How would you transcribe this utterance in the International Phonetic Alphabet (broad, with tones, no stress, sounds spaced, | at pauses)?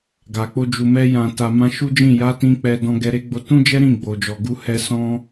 ɡ a˨ k͡p o˧ d͡ʒ u˨ m ɛ˧ j ã˨ t a˨ m ã˧ ʃ u˦ d͡ʒ ĩ˦˨ j a˨˦ t ĩ˧ k͡p ɛ˧ d ɔ̃˧ ɡ ɛ˧ ɾ e˦ ɡ͡b o˧ t ũ˦ d͡ʒ ɛ˦ ɾ ĩ˦˨ ɡ͡b o˨ d͡ʒ ɔ˨ ɡ u˧ h ɛ˦ s ɔ̃˦